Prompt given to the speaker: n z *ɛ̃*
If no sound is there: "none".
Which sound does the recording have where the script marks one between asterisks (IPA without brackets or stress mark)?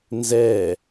ɛ